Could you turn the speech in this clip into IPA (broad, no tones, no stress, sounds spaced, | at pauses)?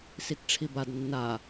s i t ʈ͡ʂʰ i b a d nː a